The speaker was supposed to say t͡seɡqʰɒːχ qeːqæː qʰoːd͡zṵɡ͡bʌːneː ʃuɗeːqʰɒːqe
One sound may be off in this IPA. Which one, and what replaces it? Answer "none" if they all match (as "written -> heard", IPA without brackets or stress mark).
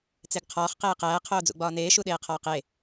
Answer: ʌː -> ɒː